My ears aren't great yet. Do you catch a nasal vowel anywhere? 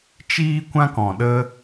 yes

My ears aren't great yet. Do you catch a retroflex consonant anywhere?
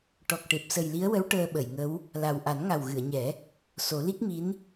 yes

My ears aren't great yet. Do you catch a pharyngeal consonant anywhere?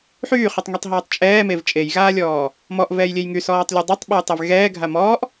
yes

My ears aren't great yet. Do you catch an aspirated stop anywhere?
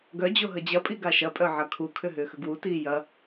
yes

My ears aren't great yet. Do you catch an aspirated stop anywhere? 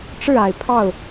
yes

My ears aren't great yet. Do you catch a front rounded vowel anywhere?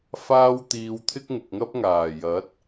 no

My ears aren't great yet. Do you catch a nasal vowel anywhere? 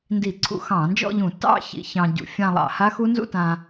yes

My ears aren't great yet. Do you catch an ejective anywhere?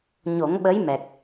no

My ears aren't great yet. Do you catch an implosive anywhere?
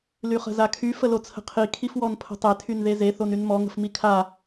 no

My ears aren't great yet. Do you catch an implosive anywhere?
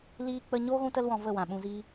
yes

